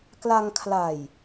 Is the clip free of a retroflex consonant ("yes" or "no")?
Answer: yes